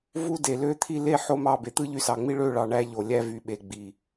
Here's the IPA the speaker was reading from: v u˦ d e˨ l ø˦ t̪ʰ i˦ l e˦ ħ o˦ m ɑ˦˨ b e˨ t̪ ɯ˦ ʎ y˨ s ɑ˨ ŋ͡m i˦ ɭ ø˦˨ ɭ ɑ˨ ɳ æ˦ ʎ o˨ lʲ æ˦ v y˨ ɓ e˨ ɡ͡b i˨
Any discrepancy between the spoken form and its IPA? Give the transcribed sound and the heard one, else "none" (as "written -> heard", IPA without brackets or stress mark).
none